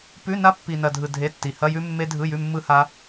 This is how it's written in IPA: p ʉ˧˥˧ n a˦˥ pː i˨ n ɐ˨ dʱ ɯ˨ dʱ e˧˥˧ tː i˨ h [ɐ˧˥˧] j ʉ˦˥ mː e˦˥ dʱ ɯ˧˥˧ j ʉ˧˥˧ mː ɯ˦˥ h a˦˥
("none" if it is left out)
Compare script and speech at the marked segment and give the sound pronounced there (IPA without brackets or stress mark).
ɐ˧˥˧